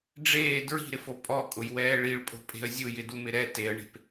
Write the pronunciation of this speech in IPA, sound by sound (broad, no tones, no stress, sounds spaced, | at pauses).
ɖ͡ʐ eː d ɹ i̤ ɾ ɪ f o pʼ ɔ kʼ ʊ j w ɛː ɭ i ɭ pʼ o̤ pʼ e̤ ə̯ zʲ ʊ j ɪ d u m ɪ ɾ ɛ t e ə̯ ɳ e̤ p